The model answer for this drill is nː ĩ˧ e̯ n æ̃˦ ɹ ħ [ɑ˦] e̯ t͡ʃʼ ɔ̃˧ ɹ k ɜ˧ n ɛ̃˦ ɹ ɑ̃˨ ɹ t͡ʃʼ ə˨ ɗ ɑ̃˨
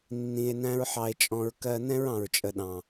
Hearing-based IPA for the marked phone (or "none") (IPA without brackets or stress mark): ɑ˧